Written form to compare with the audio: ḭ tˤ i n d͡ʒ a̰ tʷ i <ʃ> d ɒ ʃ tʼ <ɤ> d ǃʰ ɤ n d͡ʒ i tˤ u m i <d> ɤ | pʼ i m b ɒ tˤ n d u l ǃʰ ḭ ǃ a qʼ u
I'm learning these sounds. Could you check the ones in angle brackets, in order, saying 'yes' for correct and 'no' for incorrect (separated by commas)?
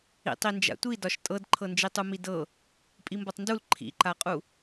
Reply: no, yes, yes